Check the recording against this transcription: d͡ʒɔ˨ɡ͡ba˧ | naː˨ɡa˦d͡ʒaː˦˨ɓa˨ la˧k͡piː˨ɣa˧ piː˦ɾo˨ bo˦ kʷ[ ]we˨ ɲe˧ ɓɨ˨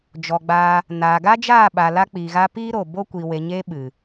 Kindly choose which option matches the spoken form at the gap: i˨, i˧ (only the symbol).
i˨